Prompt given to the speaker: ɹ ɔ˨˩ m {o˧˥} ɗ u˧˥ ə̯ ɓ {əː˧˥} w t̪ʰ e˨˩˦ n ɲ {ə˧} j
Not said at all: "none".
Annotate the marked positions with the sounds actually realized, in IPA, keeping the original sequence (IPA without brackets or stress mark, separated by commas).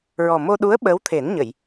o˧, əː˧˥, ə˨˩˨